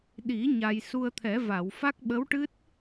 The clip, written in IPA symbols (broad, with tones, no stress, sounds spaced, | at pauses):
ɗ i˨˩˦ ɲ a˧ j s u˧ ə̯ t̪ʰ ɛ˨˩˦ v a˨˩˨ w f a˦˥ k̚ ɓ ə˧˥ w ʈ ɨ˦˥ t̚